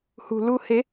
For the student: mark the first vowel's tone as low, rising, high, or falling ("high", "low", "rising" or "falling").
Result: low